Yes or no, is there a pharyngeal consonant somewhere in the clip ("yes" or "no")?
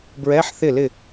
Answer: yes